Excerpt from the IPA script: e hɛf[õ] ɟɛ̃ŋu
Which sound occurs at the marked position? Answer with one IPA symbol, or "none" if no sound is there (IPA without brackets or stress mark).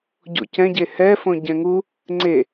õ